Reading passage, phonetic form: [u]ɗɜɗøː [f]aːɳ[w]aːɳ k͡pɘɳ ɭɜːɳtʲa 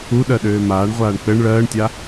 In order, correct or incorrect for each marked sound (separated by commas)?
correct, incorrect, incorrect